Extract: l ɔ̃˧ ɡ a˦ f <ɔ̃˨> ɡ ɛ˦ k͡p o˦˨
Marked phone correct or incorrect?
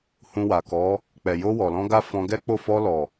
incorrect